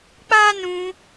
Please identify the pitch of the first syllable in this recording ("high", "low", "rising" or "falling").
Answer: high